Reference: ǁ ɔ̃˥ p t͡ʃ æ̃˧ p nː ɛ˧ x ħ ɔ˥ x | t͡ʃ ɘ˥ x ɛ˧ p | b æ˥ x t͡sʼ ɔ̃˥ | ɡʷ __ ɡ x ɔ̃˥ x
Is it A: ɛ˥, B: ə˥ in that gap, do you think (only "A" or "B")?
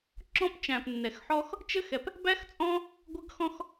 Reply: B